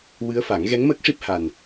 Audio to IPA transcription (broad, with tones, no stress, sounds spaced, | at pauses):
w ɨ˧˥ ə̯ f a˨˩˦ ŋ ɣ ɛ˧˥ ŋ m əː˦˥ k̚ ʂ i˦˥ p̚ h a˨˩ n